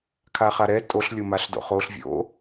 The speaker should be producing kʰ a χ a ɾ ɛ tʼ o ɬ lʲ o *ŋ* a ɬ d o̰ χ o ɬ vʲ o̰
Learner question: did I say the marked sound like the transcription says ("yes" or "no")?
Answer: no